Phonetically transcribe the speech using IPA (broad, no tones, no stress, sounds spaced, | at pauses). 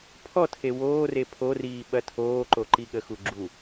pʰ ɔ tʰ e w oː r e pʰ o r iː ɓ ɐ tʰ oː ǃ o ǃ i ɠ ə x u ɡ͡ǁ u